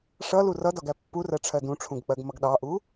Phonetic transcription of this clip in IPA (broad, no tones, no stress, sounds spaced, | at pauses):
ʂ ʌ l u r ʌ d ɒ ɡ æ pː u r ɜ ʈ͡ʂʰ ɜ d ũ ʈ͡ʂʰ ũ ɡ k͡p ɜ ɡ m ʌ ɡ ɗ ɑ ʔ u